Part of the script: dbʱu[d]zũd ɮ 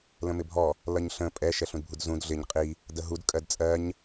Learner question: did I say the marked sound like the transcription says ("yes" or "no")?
yes